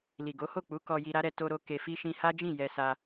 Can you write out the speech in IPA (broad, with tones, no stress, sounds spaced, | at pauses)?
l i˨ ɡ o˨˦ h o˦˨ k͡p u˨˦ k ɔ˧ j i˧ ɾ a˦ ɾ ɛ˧ t o˧ ɾ o˧ k e˧ f i˦ ʃ ĩ˧ h a˦ d͡ʒ ĩ˦˨ j ɛ˧ s a˧